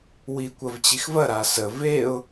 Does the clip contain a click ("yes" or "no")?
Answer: no